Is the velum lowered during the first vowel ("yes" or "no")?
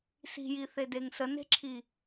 no